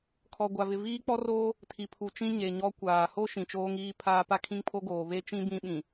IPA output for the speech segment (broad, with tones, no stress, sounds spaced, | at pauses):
kʰ ɔ˨ ɡʷ a˨ v ɪ˨ v iː˦ k͡p ɔ˦ r oː˦ | tʰ i˨ pʰ u˨ t͡ʃ ĩ˦ ɲ e˨ ɲ ɔ˦ kʷ aː˨ h o˦ ʃ ĩ˨ t͡ʃ oː˦ ŋ iː˦ pʰ aː˦ p a˦ kʰ ĩ˦ ŋ pʰ o˦ ɡ oː˨ β e˦ t͡ʃ ĩ˦ b ĩ˦ ɓ ĩ˨